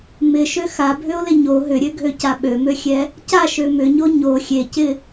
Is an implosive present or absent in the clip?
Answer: present